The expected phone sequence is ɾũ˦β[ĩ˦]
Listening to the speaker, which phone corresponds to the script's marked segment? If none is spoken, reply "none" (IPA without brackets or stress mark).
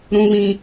ĩ˦